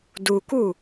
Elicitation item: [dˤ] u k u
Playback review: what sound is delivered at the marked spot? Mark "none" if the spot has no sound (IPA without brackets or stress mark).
d